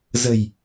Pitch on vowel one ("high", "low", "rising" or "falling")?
low